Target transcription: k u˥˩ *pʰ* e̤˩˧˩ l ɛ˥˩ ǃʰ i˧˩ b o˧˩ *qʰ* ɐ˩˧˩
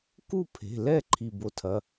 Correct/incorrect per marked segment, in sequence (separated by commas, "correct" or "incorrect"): correct, incorrect